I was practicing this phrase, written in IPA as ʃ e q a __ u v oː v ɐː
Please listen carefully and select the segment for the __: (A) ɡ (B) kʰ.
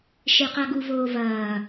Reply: A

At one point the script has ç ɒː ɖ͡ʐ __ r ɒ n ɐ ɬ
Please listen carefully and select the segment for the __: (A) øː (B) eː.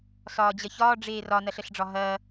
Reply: B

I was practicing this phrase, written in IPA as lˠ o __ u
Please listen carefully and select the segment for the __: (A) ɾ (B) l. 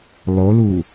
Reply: B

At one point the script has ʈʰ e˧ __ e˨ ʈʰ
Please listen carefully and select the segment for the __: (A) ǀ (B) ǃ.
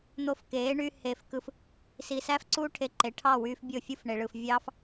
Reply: B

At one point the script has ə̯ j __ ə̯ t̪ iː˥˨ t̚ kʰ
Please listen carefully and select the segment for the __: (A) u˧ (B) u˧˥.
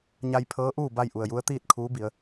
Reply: B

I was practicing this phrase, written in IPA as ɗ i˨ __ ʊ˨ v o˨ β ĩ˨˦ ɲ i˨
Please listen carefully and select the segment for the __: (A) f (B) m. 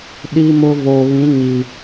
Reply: B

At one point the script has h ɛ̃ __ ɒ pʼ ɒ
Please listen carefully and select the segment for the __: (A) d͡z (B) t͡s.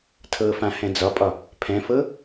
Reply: A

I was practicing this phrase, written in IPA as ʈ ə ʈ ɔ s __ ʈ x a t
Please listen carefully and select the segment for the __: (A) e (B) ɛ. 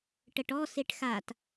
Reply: A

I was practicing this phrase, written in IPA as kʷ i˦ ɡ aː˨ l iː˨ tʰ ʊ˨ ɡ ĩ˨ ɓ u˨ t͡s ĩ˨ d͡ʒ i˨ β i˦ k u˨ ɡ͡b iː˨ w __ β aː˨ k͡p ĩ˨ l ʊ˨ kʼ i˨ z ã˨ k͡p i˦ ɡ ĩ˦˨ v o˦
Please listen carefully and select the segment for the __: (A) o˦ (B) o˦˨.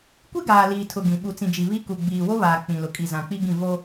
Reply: A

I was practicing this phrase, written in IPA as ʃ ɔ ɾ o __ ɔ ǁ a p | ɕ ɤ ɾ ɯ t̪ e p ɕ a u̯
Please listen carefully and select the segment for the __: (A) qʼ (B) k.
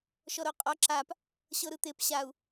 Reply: A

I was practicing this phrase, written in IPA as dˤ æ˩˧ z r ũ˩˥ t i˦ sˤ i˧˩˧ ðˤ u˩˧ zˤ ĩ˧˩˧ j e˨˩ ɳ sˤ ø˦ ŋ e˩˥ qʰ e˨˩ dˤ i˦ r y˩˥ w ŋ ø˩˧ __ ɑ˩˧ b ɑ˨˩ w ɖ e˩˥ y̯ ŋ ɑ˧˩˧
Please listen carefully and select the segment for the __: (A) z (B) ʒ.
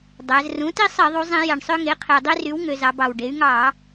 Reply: A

